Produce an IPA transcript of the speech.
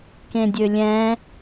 k ẽ dʲ ø lʲ ɛ̃

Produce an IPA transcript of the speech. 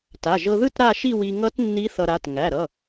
t a˩˧˩ ʒ ɤ˧ ð ɯ˥˧ t ɾ a˥˧ ʃ i˥˧ w i˧ ŋ ʌ˦˥ t nː i˦˥ θ ʌ˧ ɾ a˩˧˩ t ŋ æ˩˧˩ ɾ ʌ˩˧˩

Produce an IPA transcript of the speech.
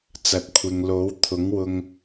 t͡s ɐ˨ t̚ kʷʰ ɪ˨ ŋ l o˨˥ w t̪ʰ ʊ˨˥ ŋ w ʊ˧ ŋ

